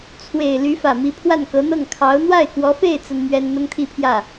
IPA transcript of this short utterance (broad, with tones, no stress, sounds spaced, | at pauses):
t͡sʰ w e˨˩ ɪ̯ l y˧˥ f ä˨˩ m i˧˥ pʰ w a˥˩ n k ɤ˧˥ n̪ ɤ˥˩ ŋ kʰ ɑ˧˥ ʊ̯ n̪ w a˥˩ ɪ̯ k w ɔ˧˥ f e˥˩ ɪ̯ t͡s ə˥ n m ɥ ɛ˥ n n̪ ʊ˥ ŋ t̪ʰ i˥˧ pʰ j ä˥˩